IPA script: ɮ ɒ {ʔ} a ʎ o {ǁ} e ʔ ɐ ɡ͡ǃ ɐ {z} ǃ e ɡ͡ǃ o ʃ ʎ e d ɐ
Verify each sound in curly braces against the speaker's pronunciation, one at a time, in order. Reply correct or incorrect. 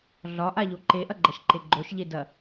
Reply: correct, incorrect: ǃ, incorrect: ʃ

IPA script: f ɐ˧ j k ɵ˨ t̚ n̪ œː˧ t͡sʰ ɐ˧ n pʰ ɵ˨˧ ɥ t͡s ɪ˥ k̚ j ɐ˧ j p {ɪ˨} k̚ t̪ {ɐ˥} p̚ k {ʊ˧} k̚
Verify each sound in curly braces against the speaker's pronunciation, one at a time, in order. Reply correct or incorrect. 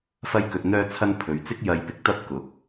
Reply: incorrect: ɪ˧, incorrect: ɐ˧, incorrect: ʊ˨˥

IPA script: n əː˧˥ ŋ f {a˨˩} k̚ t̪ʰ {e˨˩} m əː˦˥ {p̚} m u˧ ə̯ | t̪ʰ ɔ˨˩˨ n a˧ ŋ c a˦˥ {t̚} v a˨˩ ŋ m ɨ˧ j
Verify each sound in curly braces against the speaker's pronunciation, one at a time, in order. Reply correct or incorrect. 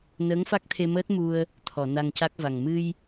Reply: incorrect: a˦˥, incorrect: e˧, incorrect: t̚, incorrect: k̚

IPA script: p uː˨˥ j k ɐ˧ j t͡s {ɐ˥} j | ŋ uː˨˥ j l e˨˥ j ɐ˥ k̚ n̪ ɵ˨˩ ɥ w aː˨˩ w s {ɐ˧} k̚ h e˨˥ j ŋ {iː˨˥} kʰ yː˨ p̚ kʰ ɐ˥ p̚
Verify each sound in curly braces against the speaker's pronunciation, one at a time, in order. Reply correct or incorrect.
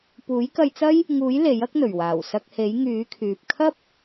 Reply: correct, correct, incorrect: yː˨˥

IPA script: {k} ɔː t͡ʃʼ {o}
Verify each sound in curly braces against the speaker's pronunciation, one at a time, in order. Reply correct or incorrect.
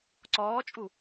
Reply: incorrect: ǀ, incorrect: u

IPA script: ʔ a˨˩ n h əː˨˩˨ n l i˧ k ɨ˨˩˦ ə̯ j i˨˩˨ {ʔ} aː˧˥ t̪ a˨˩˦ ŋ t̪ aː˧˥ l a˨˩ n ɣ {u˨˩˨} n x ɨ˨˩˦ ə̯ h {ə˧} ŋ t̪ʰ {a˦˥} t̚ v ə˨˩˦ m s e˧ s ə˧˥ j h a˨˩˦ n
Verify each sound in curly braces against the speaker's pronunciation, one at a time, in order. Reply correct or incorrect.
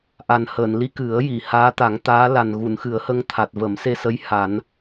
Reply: incorrect: h, correct, correct, incorrect: a˨˩

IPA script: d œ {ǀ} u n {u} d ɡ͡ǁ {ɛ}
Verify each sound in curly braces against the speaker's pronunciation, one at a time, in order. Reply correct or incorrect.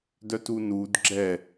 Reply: incorrect: t, correct, correct

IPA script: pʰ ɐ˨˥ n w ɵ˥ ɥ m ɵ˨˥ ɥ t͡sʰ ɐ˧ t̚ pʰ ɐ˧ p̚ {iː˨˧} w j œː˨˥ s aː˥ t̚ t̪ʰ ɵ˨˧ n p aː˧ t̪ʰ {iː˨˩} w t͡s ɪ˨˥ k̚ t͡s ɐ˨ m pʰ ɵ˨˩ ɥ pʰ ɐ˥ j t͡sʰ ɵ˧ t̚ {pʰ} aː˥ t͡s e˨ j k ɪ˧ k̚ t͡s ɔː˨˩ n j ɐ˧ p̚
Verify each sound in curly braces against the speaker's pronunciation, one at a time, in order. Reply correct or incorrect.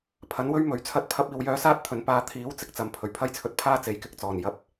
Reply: incorrect: iː˨, incorrect: iː˨˥, correct

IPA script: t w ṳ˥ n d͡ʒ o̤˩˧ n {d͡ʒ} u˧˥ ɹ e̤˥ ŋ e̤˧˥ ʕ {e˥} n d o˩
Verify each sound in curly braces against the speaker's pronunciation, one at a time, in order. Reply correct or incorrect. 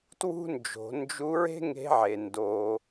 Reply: correct, incorrect: e˩

